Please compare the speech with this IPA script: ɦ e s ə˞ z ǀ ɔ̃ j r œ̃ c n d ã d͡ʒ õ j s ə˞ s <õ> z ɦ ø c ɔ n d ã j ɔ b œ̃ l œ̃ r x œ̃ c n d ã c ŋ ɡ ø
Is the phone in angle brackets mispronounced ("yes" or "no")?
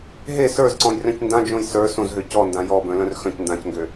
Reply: no